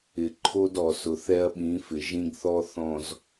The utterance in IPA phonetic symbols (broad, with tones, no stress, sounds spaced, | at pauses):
ɪ˨ ǃʰ o˦ d ɔ˨ s ʊ˨ θ ɛ˦ ɐ̯ ɓ ĩ˨˦ f ɪ˨ ʒ ĩ˦ ɡ θ ɔ˦ θ ɔ̃˨ z